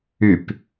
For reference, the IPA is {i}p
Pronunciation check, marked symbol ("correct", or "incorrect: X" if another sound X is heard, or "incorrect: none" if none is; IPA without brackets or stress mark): incorrect: y